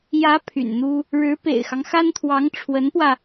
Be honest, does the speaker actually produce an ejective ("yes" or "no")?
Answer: no